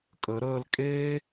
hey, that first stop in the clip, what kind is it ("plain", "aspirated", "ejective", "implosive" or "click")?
ejective